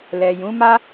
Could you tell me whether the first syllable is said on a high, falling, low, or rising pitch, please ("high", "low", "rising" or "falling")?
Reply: low